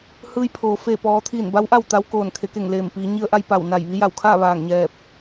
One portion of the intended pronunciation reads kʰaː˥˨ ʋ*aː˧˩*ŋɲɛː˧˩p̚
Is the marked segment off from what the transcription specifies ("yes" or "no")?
no